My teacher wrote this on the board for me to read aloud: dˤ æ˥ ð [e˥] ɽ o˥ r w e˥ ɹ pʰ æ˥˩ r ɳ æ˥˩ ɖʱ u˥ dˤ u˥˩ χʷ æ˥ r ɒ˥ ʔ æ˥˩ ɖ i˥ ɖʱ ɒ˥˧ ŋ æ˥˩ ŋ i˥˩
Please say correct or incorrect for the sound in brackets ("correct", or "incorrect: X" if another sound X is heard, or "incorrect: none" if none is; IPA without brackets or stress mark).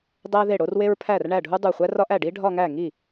incorrect: e˥˩